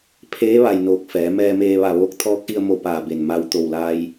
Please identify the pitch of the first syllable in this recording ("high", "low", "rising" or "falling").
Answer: rising